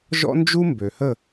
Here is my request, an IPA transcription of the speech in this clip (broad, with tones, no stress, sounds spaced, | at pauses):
ʒ ɔ̰˥ n d͡ʒ u˥ m b ø˨ h ə˥˧